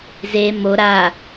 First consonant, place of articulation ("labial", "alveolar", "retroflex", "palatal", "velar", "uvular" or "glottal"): alveolar